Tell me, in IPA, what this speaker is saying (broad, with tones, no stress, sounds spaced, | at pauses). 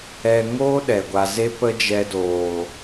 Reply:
ɛ˧ ŋ o˦ ɗ ɛ˨ ɡʷ a˧ z e˦ p ə˦ d͡ʒ ɛ˧ d oː˨